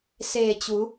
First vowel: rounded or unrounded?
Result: unrounded